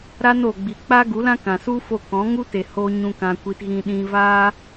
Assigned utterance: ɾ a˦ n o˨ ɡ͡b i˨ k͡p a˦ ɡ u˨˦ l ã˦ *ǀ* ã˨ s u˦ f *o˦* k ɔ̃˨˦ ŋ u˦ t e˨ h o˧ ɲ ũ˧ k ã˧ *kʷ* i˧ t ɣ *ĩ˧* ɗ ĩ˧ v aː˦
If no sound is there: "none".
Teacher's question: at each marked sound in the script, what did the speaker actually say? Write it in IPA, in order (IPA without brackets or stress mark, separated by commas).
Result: k, o˦˨, kʷ, ĩ˧